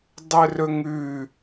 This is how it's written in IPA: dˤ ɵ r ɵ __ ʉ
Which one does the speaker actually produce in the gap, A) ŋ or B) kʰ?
A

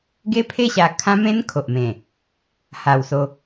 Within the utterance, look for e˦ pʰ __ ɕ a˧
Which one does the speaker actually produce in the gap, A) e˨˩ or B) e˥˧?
B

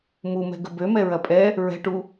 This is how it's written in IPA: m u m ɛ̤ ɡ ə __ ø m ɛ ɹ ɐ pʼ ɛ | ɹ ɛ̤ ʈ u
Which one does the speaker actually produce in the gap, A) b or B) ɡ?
A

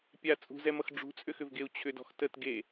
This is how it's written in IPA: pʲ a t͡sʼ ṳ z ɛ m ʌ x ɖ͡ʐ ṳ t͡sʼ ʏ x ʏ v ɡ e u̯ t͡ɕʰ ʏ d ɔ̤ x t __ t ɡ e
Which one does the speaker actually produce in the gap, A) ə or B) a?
A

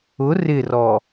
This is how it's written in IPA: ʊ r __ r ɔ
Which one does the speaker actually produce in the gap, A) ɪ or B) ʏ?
A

